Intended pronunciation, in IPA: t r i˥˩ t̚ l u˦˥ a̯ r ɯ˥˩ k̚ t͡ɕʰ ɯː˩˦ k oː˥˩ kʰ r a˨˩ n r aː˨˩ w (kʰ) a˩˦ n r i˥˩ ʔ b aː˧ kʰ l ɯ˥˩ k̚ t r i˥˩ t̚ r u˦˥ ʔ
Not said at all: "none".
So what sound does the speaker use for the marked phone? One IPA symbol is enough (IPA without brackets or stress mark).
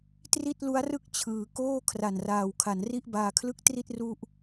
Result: kʰ